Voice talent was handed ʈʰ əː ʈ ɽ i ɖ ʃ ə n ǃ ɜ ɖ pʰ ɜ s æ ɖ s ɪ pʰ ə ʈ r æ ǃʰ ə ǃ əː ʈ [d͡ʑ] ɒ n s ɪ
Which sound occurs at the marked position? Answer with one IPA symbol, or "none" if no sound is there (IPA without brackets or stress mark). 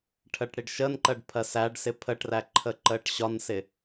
ɕ